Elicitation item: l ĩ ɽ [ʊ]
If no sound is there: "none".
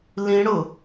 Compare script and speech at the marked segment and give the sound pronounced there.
ʊ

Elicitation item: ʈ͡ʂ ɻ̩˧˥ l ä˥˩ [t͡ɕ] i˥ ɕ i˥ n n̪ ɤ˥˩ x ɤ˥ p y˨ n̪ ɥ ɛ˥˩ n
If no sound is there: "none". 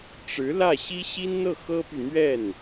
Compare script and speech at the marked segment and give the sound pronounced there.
ɕ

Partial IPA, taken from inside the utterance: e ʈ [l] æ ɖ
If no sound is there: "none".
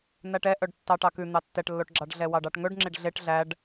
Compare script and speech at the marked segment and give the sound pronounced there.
ɮ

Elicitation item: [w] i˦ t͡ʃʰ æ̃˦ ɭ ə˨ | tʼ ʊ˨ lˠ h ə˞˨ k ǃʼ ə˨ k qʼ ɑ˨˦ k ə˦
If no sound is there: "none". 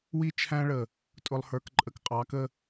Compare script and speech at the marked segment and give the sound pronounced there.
w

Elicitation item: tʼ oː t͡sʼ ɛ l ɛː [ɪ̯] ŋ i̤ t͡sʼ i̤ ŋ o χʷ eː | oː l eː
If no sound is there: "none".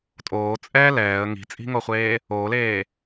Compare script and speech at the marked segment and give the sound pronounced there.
ə̯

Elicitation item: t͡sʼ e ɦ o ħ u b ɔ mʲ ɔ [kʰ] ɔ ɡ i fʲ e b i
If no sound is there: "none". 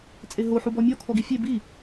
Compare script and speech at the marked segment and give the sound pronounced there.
kʰ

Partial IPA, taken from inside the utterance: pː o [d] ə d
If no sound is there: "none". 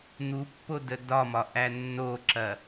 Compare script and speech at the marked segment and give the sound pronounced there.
d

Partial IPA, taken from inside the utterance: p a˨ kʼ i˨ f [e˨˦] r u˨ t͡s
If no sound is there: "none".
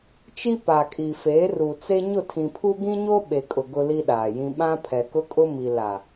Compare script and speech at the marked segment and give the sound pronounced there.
e˨˦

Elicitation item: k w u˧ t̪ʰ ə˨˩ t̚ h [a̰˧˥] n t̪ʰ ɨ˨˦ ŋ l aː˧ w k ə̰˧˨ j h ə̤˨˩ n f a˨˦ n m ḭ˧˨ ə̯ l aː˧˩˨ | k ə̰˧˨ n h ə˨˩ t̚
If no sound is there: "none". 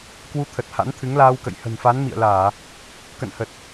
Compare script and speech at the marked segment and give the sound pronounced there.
a̰˧˥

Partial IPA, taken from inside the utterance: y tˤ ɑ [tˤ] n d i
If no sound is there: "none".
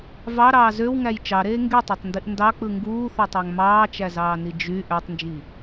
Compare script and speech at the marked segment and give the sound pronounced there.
tˤ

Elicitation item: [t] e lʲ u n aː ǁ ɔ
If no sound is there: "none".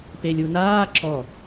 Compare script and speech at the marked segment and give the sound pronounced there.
p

